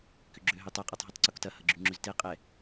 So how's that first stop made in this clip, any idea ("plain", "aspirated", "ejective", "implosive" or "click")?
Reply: plain